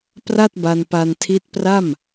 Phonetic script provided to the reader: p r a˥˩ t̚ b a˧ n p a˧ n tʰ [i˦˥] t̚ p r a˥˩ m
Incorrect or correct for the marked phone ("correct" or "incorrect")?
correct